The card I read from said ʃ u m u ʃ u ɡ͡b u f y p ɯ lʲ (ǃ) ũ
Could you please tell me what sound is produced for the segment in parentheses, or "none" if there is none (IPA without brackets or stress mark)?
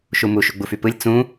t͡s